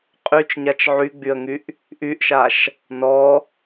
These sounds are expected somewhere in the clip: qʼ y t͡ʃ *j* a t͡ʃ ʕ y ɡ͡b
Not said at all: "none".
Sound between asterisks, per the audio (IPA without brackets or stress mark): ɲ